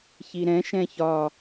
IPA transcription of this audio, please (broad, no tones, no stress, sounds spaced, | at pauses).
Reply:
ç i ɾ ɛ̃ ʃ ɛ̃ ç ɒ